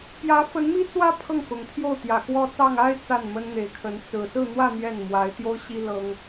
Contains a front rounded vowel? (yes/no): no